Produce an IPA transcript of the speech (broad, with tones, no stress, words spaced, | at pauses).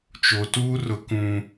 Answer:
t͡ʃo˨tuː˦ rʊ˦kũ˦